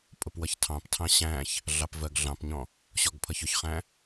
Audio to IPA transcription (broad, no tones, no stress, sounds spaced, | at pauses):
pʼ ʊ p w ʌ ç tʰ ɑ̃ p tʰ ɑ̃ ɕ æ̃ ç | ɮ ɑ p v ɜ ɡ ɮ ɑ̃ p ɲ ɔ̃ | ɕ ɔ ɡ pʰ ʌ ç ʊ ç χ æ̃